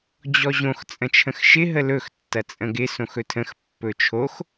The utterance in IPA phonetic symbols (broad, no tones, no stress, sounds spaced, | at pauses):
d͡ʑ ɔ ʑ õ x t͡sʼ ə̃ t͡ʃʰ ə̃ x ʃ ɪ ɦ ə l ɵ x tː ɐ t͡sʼ ə̃ ɡ ɪ s õ x ɵ tʰ ə̃ x pː ɵ t͡ʃʰ o x